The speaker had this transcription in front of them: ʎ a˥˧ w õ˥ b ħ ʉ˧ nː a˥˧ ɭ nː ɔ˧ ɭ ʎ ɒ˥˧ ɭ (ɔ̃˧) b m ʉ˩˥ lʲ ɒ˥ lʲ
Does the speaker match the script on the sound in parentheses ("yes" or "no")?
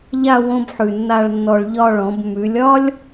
no